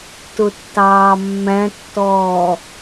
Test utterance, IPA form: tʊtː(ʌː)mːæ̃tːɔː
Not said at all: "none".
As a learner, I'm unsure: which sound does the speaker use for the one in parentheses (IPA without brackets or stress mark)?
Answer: ɑː